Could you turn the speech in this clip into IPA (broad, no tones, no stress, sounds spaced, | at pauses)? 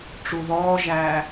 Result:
ʈ͡ʂ u ð ɔː ʒ æː